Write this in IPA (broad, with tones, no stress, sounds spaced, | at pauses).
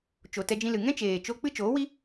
t͡ʃ o˨ t ɛ˧ d͡ʒ ĩ˧ l ɨ˨ ŋ ɛ̃˦ t͡ʃ eː˨ t͡ʃ o˧ k͡p ɨ˦ t͡ʃ oː˨˦ w i˦